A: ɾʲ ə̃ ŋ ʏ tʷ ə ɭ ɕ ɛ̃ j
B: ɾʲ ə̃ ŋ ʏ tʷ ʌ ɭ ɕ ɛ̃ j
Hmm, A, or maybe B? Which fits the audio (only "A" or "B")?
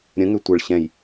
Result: A